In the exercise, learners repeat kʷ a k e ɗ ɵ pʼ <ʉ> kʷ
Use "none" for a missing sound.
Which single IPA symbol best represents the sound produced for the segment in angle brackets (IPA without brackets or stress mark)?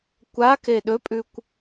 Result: ʉ